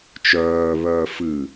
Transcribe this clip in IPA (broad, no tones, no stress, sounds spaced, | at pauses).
t͡ʃ œː β œː f ɨ